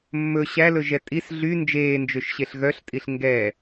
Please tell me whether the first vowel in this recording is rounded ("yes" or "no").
yes